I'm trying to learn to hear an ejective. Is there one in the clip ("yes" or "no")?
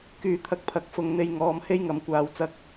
no